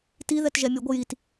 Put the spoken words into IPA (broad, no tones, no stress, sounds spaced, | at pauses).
t i ð ɛ t ʒ ɛ mʲ ə ɡʷ ə j i t